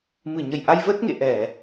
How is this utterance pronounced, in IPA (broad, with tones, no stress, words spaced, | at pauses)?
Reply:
mɨ˧˩ɲə˧˩jʔa˧j vəː˦˥t̚ŋḛ˧˨ ʔɛ˧˩˨